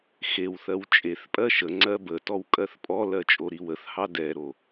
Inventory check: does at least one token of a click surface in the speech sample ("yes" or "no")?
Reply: yes